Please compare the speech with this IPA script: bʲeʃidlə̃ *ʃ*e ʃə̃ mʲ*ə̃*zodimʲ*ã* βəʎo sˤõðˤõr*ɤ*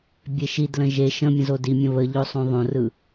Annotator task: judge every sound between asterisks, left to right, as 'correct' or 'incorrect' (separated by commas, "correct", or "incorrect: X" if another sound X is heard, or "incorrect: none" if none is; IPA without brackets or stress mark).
incorrect: ʒ, correct, incorrect: ə̃, incorrect: ɯ